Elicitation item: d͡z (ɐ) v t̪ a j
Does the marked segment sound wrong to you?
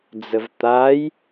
yes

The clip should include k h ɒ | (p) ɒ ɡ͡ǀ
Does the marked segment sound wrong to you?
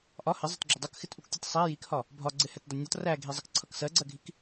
yes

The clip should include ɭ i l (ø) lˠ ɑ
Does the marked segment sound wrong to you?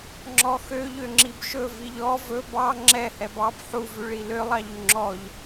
no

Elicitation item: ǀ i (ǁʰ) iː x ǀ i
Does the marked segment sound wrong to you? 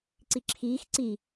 no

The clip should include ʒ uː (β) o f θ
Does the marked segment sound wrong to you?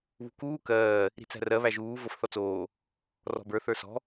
yes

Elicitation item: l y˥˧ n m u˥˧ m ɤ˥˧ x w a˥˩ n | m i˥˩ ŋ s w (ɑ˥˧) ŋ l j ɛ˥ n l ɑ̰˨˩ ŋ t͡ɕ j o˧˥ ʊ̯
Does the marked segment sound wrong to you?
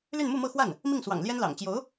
yes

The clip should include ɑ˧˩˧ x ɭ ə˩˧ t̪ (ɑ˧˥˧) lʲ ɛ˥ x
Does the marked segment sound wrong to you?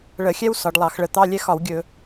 no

